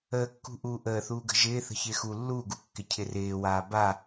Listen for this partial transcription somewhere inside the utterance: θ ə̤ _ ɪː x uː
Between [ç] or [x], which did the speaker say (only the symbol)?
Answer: ç